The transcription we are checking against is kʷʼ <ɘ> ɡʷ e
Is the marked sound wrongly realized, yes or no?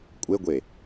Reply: yes